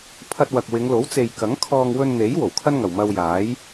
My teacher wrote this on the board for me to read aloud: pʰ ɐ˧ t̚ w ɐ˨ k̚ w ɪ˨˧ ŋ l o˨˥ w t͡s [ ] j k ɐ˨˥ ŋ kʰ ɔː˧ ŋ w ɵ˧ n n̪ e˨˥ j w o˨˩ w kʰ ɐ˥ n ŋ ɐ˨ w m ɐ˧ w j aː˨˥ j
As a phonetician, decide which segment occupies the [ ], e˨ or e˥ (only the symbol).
e˨